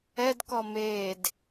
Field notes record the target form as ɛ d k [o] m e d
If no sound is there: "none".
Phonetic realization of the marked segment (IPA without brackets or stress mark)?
ɔ